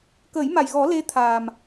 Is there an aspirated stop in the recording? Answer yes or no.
yes